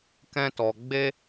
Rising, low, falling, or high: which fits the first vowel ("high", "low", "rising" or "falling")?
high